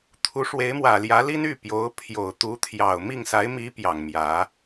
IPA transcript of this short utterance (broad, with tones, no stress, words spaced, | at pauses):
t̪ʰu˧˥ʂwe˧˥ɪ̯mwä˨˩ljä˧˥ li˥ny˥˩pjo˧˥ʊ̯ pʰjo˨˩ʊ̯t̪u˧˥t̪ʰjɑ˨˩ʊ̯ mi˥˩ŋsa˧˥ɪ̯mi˧˥ pjɑ˨˩ŋmjä˧˥